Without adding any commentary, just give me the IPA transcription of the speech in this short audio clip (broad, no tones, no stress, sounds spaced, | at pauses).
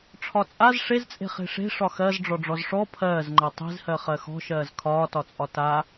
ʈ͡ʂʰ ɒ t͡sʼ a z ʂ e z t͡sʼ e̤ χ e̤ ʂ e̤ ʂ ɒ x ɜ z ɖ͡ʐ ɔ ɖ͡ʐ ɔ z ʂ ɔ pʰ ɜː z ŋ͡ǃ ɜ tˤ e̤ z h ɜ χ ɜ x ɔ̤ ʃ ɜː z kʰ ɒː t ɒ t͡sʼ ɒ t a